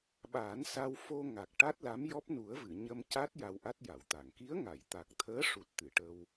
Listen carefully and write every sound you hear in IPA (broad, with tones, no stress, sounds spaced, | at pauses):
ɓ aː˨˩˦ n s a˧ w f o˧ ŋ a˨˩ k̚ ʈ a˦˥ t̚ l a˧˥ m j ɔ˦˥ p̚ n u˨˩˦ ə̯ v ɨ˨˩˨ ɲ ə˧ m c a˦˥ t̚ j a˧ w ʔ a˦˥ t̚ j a˨˩˨ w t̪ a˨˩˨ ŋ k i˧˥ ə̯ ŋ a˨˩˨ j t̪ a˨˩ k̚ t̪ʰ əː˧˥ ʂ u˨˩ t̚ t̪ ɨ˨˩˨ ʈ ə˧ w